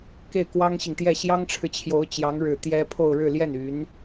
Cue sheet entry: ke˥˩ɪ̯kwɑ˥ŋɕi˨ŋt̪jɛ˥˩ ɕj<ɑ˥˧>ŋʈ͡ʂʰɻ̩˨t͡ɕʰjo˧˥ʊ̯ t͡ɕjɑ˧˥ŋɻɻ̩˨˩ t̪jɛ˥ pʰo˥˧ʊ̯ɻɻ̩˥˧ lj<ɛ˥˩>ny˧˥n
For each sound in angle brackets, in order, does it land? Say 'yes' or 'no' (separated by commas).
no, yes